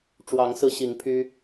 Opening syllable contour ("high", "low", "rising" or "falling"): rising